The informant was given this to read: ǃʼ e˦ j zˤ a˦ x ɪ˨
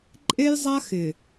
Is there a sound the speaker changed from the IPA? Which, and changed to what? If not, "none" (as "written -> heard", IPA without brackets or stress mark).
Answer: none